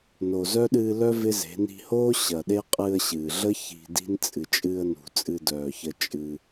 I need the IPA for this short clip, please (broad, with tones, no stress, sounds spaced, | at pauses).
n o˨ z œ˦ ɗ ɨː˧ l œ˦ v ɪ˦ z e̤˨˦ n i̤˧ h oː˦ ɕ ɐ˨ ɗ e˦ qʼ ɨ˧ ə̯ ɕ ɨː˨ ɮ ə˦ ç i̤˧ d i̤˦ n t͡sʼ ɨ˨ t͡ʃʼ ɨː˧ ə̯ n ṳ˨ t͡sʼ ɨ˧ d œː˨ ç ə˧ t͡ʃʼ ɨ˧